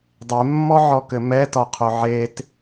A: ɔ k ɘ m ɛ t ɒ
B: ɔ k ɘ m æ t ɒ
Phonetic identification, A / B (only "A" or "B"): A